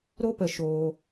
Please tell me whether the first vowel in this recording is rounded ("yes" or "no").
yes